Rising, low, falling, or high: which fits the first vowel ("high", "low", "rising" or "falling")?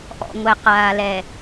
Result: low